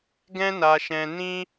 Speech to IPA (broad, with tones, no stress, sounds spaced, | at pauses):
ɡ ɛ̃˦ n a˧ ʃ ɛ̃˧ n ĩ˦